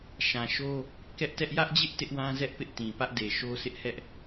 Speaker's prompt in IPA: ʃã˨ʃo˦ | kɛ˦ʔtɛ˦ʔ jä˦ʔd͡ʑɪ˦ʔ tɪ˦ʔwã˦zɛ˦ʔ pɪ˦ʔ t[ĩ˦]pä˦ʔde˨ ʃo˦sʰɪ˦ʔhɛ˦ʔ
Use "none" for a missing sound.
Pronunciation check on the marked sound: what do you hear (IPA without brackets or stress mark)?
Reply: ĩ˨